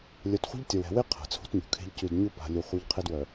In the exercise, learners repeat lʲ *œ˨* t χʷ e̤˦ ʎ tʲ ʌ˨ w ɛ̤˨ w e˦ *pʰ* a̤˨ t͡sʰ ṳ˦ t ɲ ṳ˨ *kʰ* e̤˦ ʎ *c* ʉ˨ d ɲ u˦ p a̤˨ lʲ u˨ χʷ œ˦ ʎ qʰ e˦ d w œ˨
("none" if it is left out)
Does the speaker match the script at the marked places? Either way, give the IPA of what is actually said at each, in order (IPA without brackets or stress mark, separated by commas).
œ˨, qʰ, kʰ, c